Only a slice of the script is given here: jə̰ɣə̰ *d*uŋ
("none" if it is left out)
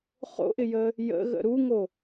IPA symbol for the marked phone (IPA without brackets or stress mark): ɾ